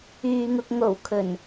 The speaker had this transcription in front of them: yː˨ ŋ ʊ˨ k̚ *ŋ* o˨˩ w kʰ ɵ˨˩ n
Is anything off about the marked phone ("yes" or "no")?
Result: no